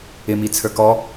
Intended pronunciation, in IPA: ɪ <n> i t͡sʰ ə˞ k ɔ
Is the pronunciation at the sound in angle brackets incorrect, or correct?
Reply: incorrect